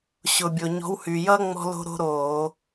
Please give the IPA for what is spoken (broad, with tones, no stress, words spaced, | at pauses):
ɕʊ˩bʲo˩ ɲɔ̤˨˦whyː˩jʌː˥ ŋ͡mɔ̤˥lo̤˥ ɾo̤˥ɾoː˧˩˧